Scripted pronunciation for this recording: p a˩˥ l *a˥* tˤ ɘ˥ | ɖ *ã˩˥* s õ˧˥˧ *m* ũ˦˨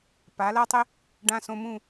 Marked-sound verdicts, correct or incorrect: correct, incorrect: ã˧˥˧, correct

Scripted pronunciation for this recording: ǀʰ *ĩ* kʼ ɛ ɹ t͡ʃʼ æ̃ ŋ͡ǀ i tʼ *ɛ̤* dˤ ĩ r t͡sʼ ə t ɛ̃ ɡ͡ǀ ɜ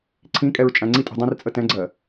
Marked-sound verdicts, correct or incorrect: correct, correct

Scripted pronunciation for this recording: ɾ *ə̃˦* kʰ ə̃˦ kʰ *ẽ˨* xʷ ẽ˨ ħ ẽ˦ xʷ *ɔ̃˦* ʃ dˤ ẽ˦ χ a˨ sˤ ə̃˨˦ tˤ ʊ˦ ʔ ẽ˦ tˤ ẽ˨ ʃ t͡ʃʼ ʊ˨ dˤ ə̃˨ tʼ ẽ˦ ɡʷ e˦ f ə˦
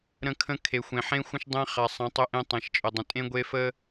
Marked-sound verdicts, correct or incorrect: correct, incorrect: e˨, incorrect: ə̃˦

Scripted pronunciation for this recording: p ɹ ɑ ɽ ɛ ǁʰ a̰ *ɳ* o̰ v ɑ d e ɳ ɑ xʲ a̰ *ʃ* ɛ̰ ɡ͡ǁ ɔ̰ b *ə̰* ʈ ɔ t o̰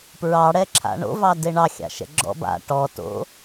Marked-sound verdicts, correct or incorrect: correct, correct, incorrect: a̰

